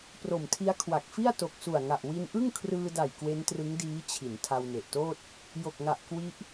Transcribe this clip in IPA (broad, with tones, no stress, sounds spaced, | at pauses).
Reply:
p r o˨˩ m tʰ i˦˥ a̯ kʰ w a˨˩ k̚ f i˥˩ a̯ t o˨˩ k̚ s u˨˩ a̯ ŋ a˨˩ ʔ w i˧ n ʔ ɯ˥˩ ŋ kʰ r ɯː˧ d a˨˩ j k w e˦˥ n t r ɯ˦˥ ŋ d iː˦˥ t͡ɕʰ i˩˦ n tʰ a˧ w n e˨˩ ʔ t oː˥˩ t̚ | j o˨˩ k̚ ŋ a˨˩ ʔ k w i˦˥ ʔ